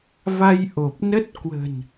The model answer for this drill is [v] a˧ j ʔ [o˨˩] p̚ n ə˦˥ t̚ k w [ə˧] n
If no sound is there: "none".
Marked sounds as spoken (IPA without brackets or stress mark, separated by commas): v, o˨˩, ə̤˨˩